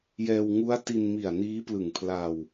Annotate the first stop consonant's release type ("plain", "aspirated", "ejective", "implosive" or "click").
plain